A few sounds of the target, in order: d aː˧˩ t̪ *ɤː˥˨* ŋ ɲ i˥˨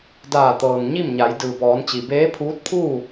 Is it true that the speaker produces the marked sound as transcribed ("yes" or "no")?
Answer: no